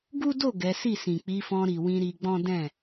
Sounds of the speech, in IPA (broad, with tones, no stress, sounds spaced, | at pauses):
ɡ u˦ d o˦˨ ɡ ɛ˨˦ s i˦˨ s ĩ˨ k͡p i˨˦ f ɔ̃˧ ɾ i˨ w ĩ˧ ɾ i˧ ɡ͡b ɔ̃˦ d ɛ̃˦˨